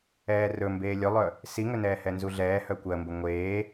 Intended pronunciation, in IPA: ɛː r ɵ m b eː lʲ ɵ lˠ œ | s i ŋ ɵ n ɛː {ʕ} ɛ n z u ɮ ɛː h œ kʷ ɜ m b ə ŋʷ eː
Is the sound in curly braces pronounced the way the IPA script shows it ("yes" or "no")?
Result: no